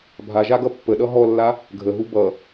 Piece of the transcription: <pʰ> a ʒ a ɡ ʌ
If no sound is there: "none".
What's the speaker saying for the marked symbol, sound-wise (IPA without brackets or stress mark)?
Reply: bʱ